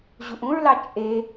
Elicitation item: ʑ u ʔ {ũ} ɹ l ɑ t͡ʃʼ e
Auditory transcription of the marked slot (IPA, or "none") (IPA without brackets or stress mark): ũ